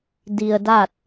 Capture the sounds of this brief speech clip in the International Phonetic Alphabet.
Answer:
d i˧ ə̯ d a˥˨ t̚

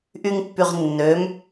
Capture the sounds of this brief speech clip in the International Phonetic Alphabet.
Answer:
ʔ y ŋ pː y ʁ nː ø m

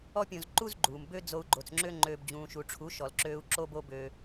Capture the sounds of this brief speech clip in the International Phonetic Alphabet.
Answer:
ɔ˦ pʲ õ˧ z ǃ u˦ z ɡ͡ǃ uː˨ m b ø˦ d͡z o˧ u̯ ɡ͡ǃ o˨ t͡s ŋ͡ǁ ø˦ ŋ͡ǃ øː˧ b d͡ʑ ũː˨ ʃ u˨ ʈ͡ʂʰ u˨˦ ʃ ɔ˨ l ǁ øː˧ u̯ ǁ o˦ b o˦ b ø˧

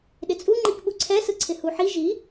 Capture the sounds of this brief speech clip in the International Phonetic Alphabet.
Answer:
ɗ ɪ t͡sʼ u ŋ͡ǃ i k ɓ u ǀʰ ɛ s ɯ ǀʰ ɪ h u ħ i ʒ i

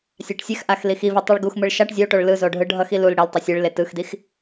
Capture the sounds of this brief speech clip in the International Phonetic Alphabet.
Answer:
sʲ a ʈ sʲ ɛ x ʔ a x l i x i v i tˤ i ɭ ɡ u x m ɯ ɭ ʃ a ʈ zʲ o ʈ o ɭ l ɯ z o ɖʱ ɯ ɖʱ ʌ x i l u l ɽ e l tˤ ʌ sʲ ɯ ɭ l e t ɯ x d i x

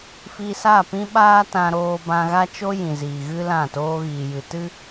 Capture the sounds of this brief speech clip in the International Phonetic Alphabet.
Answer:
f i˧ s a˦˨ p ĩ˦ ɓ aː˦ t ã˧ ɾ oː˧ b ã˧ ɣ a˦ t͡ʃ o˦ j ĩ˨ z iː˨ ɣ ɨ˦ l ã˦˨ t oː˦ ɣ iː˨ j ɨ˨ t ɨ˦

